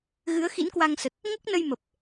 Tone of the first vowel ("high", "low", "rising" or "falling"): rising